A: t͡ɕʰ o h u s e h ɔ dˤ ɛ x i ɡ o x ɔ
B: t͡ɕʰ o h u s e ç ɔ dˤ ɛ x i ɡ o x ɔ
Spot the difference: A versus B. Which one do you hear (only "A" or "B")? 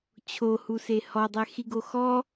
A